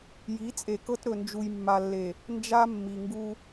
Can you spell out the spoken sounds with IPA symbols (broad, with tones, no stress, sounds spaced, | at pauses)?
j i˨˦ t͡sʼ e˨ k ɤ˦ t ɾ ɵ˨ n d͡ʒ u˨ j mː a˨ lː e˨ | n d͡ʒ a˦ mː i˨ ŋ ɡ u˦